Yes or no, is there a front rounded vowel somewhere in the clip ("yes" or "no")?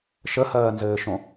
no